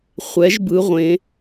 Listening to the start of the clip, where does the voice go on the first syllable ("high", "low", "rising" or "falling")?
rising